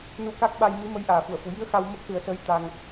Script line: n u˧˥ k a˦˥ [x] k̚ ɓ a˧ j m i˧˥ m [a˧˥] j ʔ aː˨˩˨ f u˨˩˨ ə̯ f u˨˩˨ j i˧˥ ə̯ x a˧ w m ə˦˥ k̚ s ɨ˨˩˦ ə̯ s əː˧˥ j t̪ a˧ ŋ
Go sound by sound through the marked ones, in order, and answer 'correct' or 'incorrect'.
incorrect: none, incorrect: ə˧˥

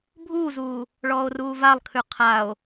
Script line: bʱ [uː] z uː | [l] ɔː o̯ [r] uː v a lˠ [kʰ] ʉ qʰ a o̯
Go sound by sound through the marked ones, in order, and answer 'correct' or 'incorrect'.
correct, incorrect: ɭ, correct, correct

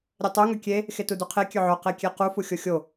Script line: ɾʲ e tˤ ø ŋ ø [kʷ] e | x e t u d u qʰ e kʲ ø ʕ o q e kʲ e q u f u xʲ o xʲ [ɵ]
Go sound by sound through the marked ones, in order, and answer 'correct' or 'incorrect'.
incorrect: kʲ, incorrect: o

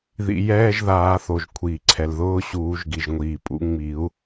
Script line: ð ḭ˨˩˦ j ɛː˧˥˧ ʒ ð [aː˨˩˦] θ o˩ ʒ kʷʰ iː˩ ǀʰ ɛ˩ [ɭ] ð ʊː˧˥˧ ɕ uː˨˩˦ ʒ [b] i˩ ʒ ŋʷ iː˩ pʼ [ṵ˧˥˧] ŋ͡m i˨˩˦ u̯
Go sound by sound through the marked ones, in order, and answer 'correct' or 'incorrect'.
correct, incorrect: l, incorrect: ɡ, incorrect: ṵ˨˩˦

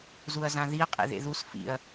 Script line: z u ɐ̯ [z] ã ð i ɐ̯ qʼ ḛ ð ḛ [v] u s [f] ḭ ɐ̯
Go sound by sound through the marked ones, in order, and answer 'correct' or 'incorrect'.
correct, incorrect: ð, correct

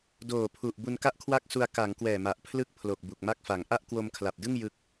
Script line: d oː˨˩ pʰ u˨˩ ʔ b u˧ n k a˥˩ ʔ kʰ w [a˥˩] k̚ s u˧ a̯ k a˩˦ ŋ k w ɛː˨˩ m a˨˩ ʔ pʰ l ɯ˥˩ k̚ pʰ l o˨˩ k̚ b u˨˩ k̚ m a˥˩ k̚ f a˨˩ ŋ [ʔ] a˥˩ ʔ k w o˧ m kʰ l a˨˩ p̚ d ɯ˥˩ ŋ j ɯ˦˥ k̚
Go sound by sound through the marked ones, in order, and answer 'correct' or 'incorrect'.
correct, correct

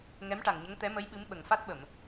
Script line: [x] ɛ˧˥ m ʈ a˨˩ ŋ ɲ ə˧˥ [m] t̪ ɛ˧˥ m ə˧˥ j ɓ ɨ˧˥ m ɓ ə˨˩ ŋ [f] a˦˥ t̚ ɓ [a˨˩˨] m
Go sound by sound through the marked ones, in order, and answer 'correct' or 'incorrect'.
incorrect: ŋ, incorrect: ŋ, correct, incorrect: ə˨˩˨

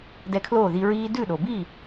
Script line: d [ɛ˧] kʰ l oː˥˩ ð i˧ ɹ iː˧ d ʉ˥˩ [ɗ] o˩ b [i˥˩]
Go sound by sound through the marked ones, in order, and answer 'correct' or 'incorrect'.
correct, correct, correct

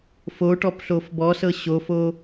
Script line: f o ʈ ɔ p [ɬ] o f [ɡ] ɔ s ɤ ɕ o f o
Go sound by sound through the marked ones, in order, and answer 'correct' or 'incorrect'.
correct, incorrect: b

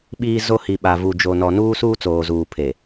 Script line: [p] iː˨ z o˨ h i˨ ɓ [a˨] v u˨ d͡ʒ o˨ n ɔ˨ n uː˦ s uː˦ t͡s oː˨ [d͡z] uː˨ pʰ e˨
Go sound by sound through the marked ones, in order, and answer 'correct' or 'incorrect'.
incorrect: ɓ, correct, incorrect: z

